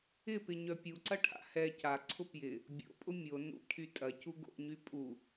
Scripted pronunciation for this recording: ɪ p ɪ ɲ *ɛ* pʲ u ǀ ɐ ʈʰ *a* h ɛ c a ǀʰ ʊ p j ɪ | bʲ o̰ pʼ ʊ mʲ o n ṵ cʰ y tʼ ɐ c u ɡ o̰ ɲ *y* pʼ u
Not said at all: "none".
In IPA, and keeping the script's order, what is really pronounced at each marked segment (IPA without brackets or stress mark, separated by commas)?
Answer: œ, a̰, y